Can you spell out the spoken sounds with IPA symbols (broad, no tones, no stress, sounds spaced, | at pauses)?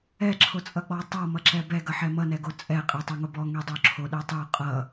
ɛ ǁʰ o t͡sʼ ʌ k͡p ɔ tˤ ʌ m ʌ ǁ ɛ b ɛ ɡ ʌ ħ ɛ m ʌ n ɛ ɡ o t͡sʼ ɛ qʼ ɛ tˤ ɛ ŋ o b ɔ ŋ ɛ dˤ o ǁʰ o ɗ ɛ tˤ o qʼ ʌ